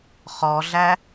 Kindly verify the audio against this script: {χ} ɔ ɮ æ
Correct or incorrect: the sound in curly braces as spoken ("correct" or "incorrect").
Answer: correct